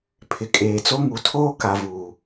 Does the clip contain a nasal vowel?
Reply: no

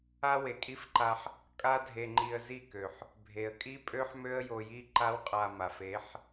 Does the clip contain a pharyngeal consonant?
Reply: yes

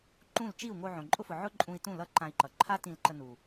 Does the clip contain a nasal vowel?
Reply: yes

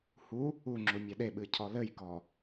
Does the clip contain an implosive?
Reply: yes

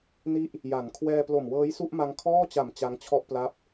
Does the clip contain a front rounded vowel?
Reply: no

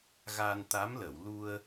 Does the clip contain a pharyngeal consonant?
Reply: no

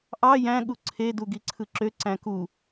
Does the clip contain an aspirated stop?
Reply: yes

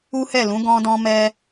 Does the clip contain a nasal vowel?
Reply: yes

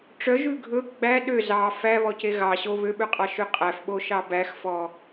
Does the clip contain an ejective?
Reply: yes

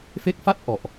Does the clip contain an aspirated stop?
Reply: no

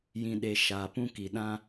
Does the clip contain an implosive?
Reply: yes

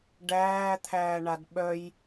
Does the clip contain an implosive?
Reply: yes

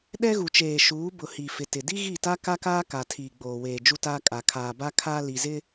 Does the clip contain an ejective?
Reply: yes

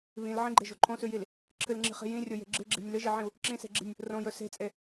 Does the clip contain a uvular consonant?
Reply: yes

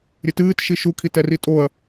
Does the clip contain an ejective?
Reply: yes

